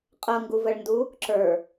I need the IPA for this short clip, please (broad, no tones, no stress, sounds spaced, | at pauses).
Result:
qʼ ɤ ŋ ɡ u v ə ɭ n d u | ǁ ə˞